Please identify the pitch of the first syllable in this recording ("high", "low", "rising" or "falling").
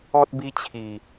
high